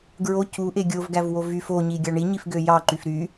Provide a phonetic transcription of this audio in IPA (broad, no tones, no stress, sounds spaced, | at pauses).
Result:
ɡ ɹ o c u ʔ e ɡʲ o v ɡ æ v w o v y f o ɲ i ɡʲ ɑ ɳ i ɲ i f ɡ ø j ɑ ǃ y f ɾ y